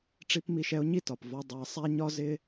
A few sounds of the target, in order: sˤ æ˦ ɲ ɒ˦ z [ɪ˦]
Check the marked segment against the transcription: correct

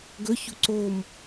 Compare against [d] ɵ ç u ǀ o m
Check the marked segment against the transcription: incorrect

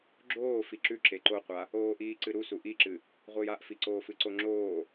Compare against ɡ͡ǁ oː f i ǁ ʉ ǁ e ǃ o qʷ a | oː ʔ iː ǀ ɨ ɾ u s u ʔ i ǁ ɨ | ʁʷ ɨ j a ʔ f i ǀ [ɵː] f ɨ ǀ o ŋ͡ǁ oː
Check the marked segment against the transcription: incorrect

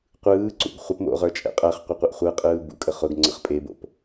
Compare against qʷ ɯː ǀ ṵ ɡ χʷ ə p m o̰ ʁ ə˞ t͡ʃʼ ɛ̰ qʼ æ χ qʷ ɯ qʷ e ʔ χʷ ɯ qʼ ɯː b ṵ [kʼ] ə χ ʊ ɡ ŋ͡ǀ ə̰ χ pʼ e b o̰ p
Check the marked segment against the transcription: correct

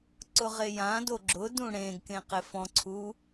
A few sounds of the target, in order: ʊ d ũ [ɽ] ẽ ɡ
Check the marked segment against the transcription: correct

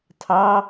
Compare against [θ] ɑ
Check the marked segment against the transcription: incorrect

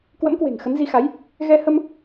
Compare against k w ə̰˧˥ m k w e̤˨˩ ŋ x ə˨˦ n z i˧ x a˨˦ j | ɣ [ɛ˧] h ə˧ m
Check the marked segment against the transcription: correct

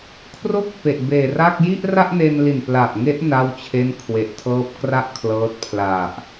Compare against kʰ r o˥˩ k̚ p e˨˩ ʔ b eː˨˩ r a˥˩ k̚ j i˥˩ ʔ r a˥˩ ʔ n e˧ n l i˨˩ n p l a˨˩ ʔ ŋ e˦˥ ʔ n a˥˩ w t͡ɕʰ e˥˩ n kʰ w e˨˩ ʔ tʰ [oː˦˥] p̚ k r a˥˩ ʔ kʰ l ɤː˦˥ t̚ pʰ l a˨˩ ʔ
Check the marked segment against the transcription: incorrect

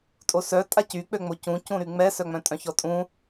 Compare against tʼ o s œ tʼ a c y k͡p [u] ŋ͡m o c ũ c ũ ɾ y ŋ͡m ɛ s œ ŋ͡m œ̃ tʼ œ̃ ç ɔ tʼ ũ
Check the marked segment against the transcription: incorrect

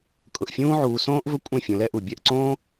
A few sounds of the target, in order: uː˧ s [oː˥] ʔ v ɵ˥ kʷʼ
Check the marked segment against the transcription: incorrect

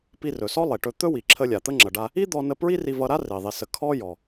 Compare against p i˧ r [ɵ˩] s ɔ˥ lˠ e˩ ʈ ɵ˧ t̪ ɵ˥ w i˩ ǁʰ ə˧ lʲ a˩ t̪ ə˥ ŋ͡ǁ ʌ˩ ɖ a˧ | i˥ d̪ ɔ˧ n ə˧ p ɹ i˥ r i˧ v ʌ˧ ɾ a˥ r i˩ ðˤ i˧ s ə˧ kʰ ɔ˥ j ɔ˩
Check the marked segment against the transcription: correct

